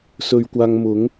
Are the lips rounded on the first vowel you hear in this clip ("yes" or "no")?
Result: yes